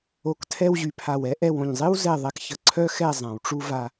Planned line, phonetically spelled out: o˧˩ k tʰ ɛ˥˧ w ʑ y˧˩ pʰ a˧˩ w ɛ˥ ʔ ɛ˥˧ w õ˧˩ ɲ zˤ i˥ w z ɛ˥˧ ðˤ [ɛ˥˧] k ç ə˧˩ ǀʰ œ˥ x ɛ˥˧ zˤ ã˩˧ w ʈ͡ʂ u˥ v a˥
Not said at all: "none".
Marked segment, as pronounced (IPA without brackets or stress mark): ɛ˧